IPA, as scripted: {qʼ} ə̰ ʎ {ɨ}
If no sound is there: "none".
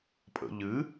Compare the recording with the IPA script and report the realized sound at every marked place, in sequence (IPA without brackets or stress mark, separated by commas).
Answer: pʼ, ɨ